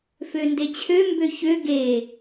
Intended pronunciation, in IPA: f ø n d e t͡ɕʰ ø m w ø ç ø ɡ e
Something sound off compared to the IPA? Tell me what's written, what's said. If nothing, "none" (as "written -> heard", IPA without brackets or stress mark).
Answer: w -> b